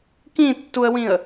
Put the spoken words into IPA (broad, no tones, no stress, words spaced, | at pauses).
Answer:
kĩtːuə̯wĩə̯